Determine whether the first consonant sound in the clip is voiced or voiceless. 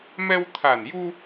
voiced